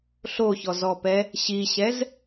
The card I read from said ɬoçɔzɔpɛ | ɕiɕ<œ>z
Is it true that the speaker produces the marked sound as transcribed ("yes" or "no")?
no